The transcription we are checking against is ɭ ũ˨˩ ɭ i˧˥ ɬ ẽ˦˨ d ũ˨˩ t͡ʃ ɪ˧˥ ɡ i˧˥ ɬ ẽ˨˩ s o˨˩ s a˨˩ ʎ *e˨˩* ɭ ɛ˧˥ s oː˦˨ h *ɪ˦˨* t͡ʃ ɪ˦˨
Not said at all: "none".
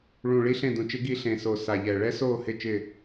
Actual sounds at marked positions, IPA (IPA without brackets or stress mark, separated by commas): ɛ˨˩, ɪ˦˨